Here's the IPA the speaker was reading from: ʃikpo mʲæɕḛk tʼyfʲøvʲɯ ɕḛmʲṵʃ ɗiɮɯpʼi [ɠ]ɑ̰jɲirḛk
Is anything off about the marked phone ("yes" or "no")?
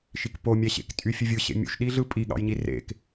no